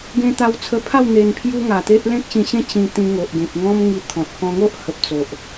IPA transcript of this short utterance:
ɡ ẽ˧ t̪ a˧ w t͡sʰ ə˧ pʰ a˥˧ w n̪ e˧ n pʰ j u˦ ŋ a˨˩ t̪ e˦ ʔ l ẽ˦ k̚ ɕ ĩ˧ ɕ ẽ˦ t͡ɕ ĩ˧ t̪ ĩ˧ ŋ o˨ ʔ ɡ ẽ˨ p̚ ŋ ɔ̃˦ m ŋ i˧ t̪ʰ ɔ̃˨ t̚ k ɔ̃˧ ŋ o˦ ʔ h ə˨ p̚ t͡s o˨ ʔ

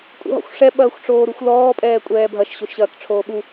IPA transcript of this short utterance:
kʼ ṵ ɦ ɔ̰ xʷ ʂ ɛ ɓ ɐː xʷ ʈ͡ʂ oː ɾ u xʷ l ɔː pʼ ɛː kʷʼ ɛː bʱ ɐ ʃ ɕ o ʃ ɕ ɐː k ʈ͡ʂʰ oː ɓ u

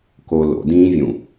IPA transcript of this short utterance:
k o l o̰ d ĩː vʲ ũ

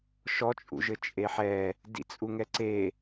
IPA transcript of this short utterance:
ʃ ɔ t͡ʃʼ ṵ ʒ ɘ t͡ʃʼ e ħ ɛ | d ḭ t͡sʼ u ŋ ɛ ǀ e

